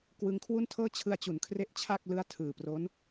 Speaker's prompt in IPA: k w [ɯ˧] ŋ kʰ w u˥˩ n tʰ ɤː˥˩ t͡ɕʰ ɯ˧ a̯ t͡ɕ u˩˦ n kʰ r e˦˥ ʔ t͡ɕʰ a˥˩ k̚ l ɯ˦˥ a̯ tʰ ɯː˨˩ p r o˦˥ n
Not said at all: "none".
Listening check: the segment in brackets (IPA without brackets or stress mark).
ɯ˧